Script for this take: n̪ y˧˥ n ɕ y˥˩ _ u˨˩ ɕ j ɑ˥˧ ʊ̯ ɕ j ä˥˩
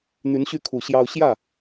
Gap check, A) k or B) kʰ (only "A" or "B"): B